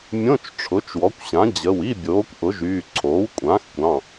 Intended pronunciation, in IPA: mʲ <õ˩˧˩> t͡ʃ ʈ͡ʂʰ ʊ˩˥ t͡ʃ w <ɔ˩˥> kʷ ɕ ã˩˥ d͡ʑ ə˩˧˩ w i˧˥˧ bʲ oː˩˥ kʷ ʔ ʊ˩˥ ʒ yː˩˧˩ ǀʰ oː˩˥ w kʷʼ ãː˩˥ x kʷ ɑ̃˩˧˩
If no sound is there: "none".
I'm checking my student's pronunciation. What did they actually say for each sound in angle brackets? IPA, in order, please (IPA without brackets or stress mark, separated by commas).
õ˧˥˧, ɔ˩˥